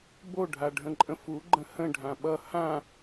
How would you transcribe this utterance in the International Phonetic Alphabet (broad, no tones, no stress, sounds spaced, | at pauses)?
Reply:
b o ɖʱ a ɖʱ ə̃ ǃʼ ə̃ f u ɡ͡ǃ ə̃ h ə̃ ɖʱ ã ɓ ʌ h ã